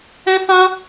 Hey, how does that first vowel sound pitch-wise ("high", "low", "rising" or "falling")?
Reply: high